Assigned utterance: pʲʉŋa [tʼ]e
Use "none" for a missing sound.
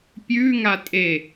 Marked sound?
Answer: tʼ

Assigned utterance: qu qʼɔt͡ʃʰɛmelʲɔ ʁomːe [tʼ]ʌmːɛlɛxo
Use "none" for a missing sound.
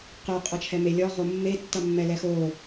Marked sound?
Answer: tː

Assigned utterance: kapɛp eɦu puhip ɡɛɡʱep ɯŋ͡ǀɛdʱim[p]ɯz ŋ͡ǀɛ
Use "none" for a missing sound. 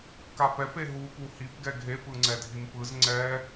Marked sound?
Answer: p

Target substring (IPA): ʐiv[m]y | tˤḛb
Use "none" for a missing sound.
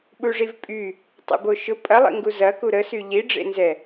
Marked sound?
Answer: pʼ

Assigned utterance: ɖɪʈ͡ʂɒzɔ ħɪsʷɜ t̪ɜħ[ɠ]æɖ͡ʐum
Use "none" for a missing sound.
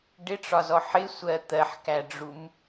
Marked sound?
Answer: k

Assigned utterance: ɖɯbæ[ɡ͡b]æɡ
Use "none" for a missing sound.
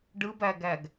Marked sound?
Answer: ɡ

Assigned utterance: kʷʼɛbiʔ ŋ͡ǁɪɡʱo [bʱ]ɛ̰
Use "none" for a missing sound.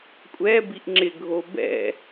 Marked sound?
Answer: b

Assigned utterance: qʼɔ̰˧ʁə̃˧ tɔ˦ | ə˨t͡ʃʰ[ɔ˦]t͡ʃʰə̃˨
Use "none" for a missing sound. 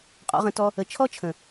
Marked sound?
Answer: ɔ˦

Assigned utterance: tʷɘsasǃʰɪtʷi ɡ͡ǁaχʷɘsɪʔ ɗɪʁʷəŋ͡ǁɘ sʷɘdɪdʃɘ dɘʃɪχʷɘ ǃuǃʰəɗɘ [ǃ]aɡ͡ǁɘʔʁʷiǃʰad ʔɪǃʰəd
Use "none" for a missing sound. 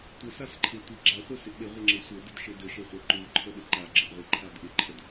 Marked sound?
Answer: ǃ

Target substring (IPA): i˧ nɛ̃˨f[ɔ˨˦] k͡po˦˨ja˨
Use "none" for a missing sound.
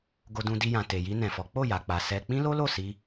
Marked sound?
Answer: ɔ˨˦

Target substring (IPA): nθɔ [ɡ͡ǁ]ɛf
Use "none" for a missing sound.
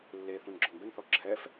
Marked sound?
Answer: ǁʰ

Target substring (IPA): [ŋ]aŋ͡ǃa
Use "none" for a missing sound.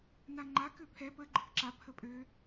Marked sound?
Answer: n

